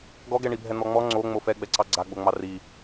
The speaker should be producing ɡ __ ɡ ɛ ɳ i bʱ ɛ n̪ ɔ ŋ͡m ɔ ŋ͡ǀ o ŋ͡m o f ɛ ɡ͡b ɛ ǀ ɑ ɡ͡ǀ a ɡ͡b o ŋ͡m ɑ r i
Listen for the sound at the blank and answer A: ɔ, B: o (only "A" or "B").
A